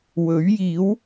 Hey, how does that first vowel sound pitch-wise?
rising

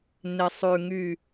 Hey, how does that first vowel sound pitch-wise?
low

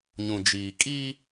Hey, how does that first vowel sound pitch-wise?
low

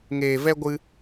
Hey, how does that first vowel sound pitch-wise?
low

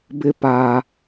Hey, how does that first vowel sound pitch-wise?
high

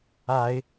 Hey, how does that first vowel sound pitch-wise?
rising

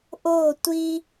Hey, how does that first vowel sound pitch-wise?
falling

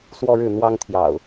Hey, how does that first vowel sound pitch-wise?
high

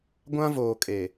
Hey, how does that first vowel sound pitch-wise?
high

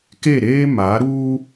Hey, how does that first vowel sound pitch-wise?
falling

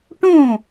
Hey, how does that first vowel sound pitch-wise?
falling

